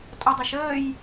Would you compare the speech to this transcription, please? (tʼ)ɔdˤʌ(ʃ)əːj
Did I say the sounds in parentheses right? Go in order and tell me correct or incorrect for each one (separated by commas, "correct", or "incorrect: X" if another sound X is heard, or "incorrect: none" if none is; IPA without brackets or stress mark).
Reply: correct, correct